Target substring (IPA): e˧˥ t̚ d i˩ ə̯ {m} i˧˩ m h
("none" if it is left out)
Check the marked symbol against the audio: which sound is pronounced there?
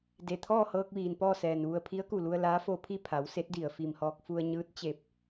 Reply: f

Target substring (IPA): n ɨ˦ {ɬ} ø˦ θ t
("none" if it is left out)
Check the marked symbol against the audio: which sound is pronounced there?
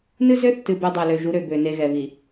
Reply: z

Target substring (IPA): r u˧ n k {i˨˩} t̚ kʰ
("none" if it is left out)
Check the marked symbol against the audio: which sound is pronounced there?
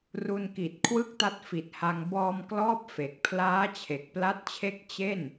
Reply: i˨˩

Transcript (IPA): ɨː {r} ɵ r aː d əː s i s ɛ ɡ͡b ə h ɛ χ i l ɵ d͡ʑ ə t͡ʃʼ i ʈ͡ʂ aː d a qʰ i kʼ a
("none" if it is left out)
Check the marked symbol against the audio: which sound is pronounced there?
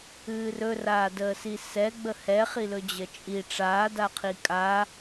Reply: r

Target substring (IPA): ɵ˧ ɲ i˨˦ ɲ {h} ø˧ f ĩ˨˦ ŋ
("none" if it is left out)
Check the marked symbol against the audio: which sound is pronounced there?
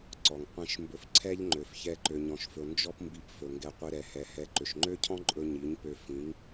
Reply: p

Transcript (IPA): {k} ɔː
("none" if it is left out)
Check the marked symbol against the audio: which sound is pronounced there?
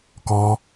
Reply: k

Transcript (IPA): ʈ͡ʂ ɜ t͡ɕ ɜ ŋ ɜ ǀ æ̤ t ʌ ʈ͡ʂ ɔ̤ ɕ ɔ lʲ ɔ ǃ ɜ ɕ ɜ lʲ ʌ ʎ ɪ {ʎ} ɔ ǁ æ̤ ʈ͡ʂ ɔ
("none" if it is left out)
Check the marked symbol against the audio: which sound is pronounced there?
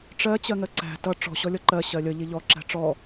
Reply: ʎ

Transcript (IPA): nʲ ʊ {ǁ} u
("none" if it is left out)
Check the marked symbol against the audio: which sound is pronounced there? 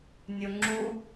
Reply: ŋ͡ǁ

